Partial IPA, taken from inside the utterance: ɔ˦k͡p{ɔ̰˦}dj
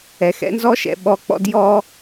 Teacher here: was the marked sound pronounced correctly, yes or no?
yes